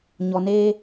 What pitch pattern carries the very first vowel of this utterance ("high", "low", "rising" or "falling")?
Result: low